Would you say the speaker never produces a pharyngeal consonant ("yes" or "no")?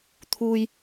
yes